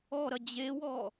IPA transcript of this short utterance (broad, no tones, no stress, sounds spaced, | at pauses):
ɔ ɾ ɐ d͡ʑ e w ɔ